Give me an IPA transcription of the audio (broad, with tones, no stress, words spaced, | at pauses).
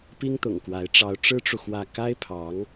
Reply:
pi˥ŋt̪ʊ̰˨˩ŋkwa˧˥ɪ̯ ʈ͡ʂɑ˧˥ʊ̯ʈ͡ʂɻ̩˥ʈ͡ʂu˨ xwä˥˩ ka˥ɪ̯pʰɑ˧˥ŋ